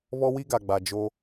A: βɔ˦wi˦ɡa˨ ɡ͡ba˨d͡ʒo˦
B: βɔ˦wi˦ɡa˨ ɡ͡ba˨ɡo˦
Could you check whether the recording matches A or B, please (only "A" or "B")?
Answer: A